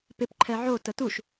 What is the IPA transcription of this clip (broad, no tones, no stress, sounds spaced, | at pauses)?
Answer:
p ɪ p ǃʰ ɛ ʕ o t ə t u ʃ